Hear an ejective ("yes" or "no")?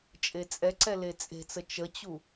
yes